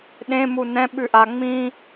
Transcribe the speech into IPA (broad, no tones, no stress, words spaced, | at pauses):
ɗẽ munɛ̃ ɓʉʔa ŋ͡mĩ